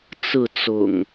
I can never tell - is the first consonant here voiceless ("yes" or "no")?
yes